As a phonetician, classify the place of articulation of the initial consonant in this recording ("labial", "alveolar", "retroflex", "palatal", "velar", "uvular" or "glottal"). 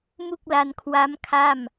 labial